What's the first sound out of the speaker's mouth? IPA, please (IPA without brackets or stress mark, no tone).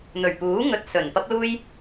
n̪